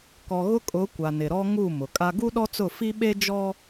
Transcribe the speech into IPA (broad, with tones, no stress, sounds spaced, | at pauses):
k ɔ˨ ɣ ʊ˦ kʼ ʊ˨˦ kʷ a˨ n ɪ˨ ɾ ɔ˦ ŋ u˦˨ m ʊ˨ kʼ a˦ ɡ u˦ ɗ ɔ˦ t͡s ʊ˦˨ f i˦ ɓ e˦ d͡ʒ ɔ˦